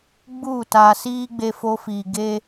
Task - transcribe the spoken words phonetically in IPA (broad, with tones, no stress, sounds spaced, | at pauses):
ɡ͡b u˦˨ t aː˧ s iː˦ ɡ͡b e˧ f o˧ f iː˨ ɡ e˦